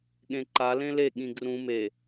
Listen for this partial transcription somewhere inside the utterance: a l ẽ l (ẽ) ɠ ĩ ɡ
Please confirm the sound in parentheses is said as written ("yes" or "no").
no